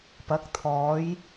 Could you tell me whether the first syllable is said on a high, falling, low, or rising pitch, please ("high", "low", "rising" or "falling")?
rising